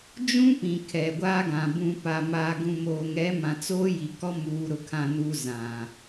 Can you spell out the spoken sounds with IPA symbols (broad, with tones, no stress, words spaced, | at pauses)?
d͡ʒũ˦pĩ˨ kʰɛ˨ɡʷaː˦ɡã˨ bũ˨pa˨maː˨ɡũ˨ moː˨ŋɛ˨˦mã˨ t͡soː˦ji˨kɔ˦ muː˨ɾʊ˨kʰã˨nu˨ zã˨